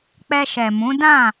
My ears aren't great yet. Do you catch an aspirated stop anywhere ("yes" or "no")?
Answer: no